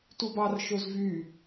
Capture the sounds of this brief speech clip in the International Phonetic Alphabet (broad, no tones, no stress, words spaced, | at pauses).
tubɑr ʃozvy